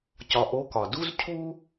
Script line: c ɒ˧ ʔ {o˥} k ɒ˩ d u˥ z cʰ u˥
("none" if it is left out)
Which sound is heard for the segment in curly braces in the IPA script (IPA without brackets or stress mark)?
o˧˥